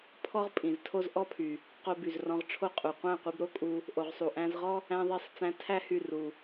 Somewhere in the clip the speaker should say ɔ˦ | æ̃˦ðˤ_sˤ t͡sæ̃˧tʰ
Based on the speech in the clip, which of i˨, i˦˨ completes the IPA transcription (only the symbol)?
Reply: i˦˨